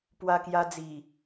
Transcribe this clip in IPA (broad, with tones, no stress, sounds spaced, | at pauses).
p w a˧ k j a˧ d͡z i˨˩